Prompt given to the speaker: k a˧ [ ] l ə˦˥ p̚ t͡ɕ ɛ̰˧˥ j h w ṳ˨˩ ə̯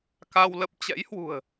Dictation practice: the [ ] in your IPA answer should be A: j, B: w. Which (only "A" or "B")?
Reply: B